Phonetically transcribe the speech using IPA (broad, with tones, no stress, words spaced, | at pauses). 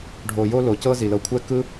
ɖʱo˩ jo˦lo˩cɤ˦ zi˩lɤ˨kʷʰɛ˥ kɯ˦